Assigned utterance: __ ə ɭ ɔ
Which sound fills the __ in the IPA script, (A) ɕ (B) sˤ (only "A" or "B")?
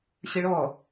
A